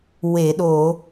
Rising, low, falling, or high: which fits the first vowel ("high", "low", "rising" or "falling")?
low